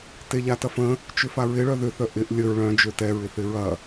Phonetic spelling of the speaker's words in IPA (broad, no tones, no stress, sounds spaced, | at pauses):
t e ʎ a t ɐ f ə̃ | t͡ʃ ʏ f a ɹ ɪ ɭ œ ð ʏ θ œ ʔ ɪ ʔ lʲ ə ɹ ɭ œ̃ d͡ʒ ø t ɛ ɹ ɪ θ ɪ ɹ ɐ